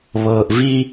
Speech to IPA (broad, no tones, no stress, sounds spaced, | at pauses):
β ɤː ʔ v i